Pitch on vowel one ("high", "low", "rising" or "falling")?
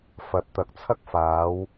rising